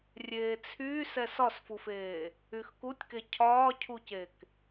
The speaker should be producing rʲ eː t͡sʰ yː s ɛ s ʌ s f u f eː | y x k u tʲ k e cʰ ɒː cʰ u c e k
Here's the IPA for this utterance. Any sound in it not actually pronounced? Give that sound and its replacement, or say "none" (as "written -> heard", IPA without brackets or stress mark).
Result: ʌ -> ɒ